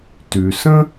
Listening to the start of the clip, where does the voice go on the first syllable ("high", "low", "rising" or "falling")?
low